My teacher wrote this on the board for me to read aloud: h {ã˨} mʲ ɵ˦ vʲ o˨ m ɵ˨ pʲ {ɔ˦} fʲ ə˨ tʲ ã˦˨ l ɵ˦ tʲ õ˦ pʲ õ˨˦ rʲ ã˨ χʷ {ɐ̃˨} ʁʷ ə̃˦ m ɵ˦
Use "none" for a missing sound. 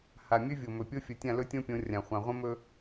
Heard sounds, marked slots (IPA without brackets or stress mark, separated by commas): a˨, o˦, ã˨